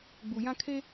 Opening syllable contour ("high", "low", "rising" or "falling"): low